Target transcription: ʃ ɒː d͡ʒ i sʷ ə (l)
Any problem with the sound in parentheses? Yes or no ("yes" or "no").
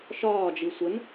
yes